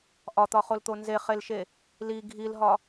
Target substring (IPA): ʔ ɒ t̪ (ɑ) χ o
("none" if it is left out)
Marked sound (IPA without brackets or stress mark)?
ɒ